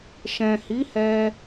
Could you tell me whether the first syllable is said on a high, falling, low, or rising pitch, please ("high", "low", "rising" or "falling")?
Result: low